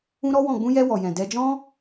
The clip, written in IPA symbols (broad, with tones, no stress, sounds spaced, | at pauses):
ũ˦ ɾ ɔ˦ w ɔ̃˦˨ ɡ͡b ũ˧ j ɛ˧ w ɔ˨ j ɛ̃˨ d ɛ˧ d͡ʒ ɔ̃˦